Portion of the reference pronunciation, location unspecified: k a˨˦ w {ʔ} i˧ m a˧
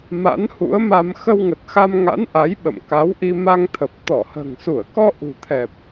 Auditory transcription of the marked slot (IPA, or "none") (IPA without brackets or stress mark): ʔ